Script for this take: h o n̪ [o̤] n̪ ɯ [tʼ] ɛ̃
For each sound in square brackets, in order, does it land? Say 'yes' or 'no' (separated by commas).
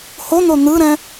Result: no, no